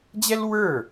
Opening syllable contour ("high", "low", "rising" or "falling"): high